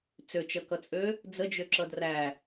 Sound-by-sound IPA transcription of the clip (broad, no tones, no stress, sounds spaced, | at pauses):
t͡s ø t͡ʃ ʌ k ʌ t͡sʼ ø | d͡z ə d͡ʒ ø ǁ ʌ d r æ